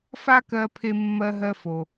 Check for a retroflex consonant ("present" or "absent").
absent